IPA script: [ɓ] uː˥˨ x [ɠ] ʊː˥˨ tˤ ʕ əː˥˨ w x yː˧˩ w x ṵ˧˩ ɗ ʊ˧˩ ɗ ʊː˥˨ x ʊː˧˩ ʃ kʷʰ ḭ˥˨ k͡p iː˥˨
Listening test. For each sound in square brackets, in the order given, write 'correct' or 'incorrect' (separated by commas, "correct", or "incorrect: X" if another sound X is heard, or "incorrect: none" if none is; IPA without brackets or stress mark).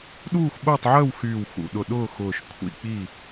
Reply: incorrect: ɗ, incorrect: ɓ